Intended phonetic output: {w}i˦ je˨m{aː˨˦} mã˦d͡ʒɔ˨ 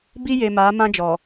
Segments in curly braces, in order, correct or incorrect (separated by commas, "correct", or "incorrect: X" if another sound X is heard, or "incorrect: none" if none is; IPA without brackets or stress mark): incorrect: b, correct